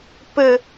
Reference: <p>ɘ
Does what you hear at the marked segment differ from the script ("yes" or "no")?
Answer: no